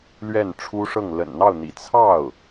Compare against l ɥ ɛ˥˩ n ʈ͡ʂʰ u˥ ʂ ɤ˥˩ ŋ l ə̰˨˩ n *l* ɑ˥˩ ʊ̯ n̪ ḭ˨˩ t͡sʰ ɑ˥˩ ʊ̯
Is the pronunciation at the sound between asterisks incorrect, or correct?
incorrect